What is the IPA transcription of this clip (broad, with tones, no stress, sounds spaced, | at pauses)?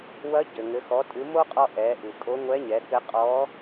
w ɐ˧˥ ɟ ɘ˩ ŋ ɘ˩˧ x ɔ˩˧ tʼ ɨ˩˧ m o˥ qʼ ɔ˧ ʔ ɛ˩˧ ʔ ɨ˩ kʼ o˧˥ ŋʷ ɛ˧˥ ɲ ɛ˩˧ k ɘ˧˥ qʼ ɔ˧˥